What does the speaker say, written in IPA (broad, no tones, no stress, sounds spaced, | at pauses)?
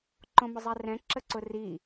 ǃ õ m ʊ zˤ ɛ r ɛ̃ ǁ ə ǀ ʊ r i